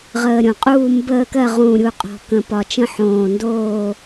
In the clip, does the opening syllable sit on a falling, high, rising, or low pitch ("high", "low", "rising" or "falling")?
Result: low